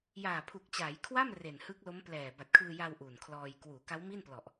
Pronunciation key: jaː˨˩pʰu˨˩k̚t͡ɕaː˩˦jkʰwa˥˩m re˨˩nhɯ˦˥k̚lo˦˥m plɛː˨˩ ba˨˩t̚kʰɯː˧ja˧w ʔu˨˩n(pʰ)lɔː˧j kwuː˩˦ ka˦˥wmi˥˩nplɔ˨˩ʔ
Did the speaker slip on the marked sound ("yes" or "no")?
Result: yes